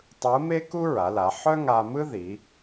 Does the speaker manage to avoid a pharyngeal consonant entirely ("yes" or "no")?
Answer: no